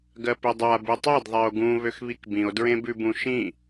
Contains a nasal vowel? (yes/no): yes